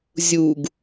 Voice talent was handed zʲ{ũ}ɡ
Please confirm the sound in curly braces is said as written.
no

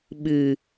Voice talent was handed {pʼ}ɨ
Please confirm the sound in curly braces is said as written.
no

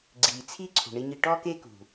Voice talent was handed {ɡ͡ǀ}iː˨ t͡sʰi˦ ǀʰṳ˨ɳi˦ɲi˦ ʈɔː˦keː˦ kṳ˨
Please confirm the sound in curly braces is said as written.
yes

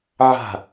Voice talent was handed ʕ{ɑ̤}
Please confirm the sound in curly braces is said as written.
no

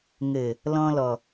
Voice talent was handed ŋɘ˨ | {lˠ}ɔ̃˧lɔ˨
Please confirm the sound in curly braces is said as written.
no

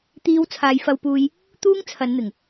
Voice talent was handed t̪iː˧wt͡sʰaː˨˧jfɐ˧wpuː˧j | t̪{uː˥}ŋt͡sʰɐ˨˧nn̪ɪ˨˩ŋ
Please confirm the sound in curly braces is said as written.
yes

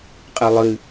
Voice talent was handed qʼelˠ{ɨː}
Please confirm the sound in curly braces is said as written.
no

